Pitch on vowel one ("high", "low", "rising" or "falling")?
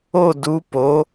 falling